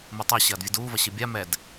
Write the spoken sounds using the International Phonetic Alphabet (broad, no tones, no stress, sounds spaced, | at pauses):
m u tˤ ɛ ɕ ɐː d vʲ ɨ d uː v ɐ ɕ ɨ bʲ a m ɛ d